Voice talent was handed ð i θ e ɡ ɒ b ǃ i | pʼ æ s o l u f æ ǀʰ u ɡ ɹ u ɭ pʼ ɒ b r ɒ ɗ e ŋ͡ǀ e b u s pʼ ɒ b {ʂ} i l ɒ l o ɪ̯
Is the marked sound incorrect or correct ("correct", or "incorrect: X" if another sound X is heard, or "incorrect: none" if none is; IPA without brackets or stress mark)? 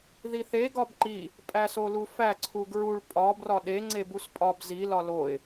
incorrect: z